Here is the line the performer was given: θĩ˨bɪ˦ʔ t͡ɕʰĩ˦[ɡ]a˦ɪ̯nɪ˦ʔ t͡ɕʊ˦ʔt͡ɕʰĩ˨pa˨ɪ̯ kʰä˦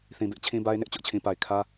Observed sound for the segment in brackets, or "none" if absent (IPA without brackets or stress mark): b